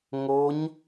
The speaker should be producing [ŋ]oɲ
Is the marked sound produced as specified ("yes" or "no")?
yes